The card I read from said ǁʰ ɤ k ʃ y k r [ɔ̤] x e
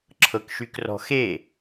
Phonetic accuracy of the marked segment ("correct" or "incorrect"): correct